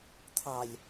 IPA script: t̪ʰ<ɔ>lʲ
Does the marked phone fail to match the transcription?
yes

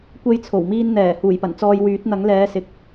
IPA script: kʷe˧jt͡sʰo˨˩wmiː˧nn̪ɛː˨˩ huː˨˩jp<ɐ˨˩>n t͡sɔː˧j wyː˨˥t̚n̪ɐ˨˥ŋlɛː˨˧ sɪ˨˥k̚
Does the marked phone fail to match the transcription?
no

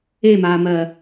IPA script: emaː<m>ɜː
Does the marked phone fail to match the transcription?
no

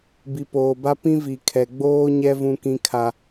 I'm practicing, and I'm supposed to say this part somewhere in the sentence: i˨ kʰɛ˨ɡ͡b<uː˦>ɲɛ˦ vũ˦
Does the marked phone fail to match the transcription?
yes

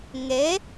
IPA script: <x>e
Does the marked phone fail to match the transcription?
yes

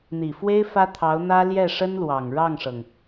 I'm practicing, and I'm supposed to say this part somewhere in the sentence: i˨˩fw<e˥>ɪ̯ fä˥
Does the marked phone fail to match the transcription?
no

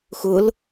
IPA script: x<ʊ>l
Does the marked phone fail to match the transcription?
no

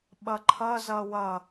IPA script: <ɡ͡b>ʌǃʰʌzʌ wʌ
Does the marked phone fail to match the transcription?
yes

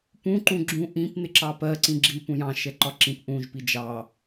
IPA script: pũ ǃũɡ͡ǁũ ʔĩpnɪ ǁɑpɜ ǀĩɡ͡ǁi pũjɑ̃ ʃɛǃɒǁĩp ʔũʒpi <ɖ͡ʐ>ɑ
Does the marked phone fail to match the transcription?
yes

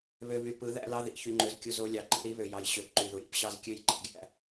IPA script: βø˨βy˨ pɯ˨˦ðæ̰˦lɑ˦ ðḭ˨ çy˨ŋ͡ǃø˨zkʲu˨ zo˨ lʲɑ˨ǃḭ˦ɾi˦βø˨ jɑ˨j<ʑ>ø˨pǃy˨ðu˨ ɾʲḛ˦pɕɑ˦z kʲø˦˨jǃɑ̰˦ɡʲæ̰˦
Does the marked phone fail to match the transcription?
yes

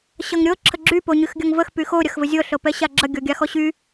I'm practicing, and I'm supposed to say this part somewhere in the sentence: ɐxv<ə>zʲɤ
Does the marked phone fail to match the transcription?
no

